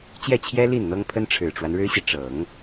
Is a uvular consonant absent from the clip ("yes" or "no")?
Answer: yes